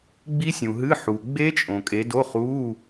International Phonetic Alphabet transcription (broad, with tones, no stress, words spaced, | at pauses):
ɡ͡bi˦˥sʲũ˨ɦɨː˧˥˧ħuː˨ ɡ͡be˦˥t͡ʃʼõ˨ kʼe˨˦do˧˥˧ χuː˧˥˧